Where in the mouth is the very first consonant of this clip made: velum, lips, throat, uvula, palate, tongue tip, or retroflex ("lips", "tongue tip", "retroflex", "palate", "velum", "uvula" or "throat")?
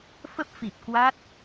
lips